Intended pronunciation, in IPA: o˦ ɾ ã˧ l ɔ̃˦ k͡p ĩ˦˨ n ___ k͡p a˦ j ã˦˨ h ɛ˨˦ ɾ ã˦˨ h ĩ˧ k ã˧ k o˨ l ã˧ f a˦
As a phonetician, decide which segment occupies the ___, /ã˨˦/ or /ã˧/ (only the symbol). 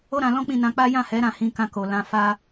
ã˧